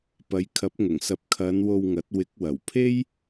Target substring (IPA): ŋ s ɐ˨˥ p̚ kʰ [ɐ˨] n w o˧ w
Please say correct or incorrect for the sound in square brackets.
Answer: incorrect